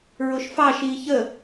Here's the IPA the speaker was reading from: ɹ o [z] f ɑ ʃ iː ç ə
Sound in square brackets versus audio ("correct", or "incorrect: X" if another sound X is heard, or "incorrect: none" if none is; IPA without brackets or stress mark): incorrect: ʃ